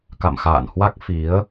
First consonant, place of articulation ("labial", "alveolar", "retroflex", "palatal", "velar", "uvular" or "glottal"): velar